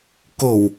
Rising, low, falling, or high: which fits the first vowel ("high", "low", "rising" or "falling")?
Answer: low